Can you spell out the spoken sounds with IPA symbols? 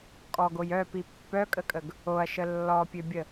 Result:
kʼɔɡoj œpi pːœkʼəkʼəɡ | oɐ̯ʃə lːɔpʲøbʲə

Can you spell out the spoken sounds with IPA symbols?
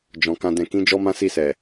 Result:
d͡ʒɔ̃˨kã˧dɛ̃˧kĩ˦ d͡ʒɔ˦mã˦si˦˨sɛ˨

